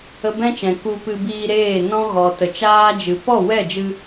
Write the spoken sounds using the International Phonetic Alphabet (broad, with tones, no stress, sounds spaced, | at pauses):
ə˧ b ɛ̃˦ t͡ʃ ɛ̃˨ k u˧ p ɨ˧ b iː˧ ɾ eː˦˨ n ɔ̃˦ ɣ ɔ˨ t ə˨ t͡ʃ aː˦ d͡ʒ ɨ˨ p ɔ˦˨ w ɛ˦˨ d͡ʒ ɨ˧